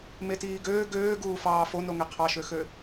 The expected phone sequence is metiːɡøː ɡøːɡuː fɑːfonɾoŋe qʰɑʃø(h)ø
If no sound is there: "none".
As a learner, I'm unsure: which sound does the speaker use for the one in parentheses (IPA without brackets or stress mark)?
x